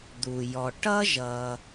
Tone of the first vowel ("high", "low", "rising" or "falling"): low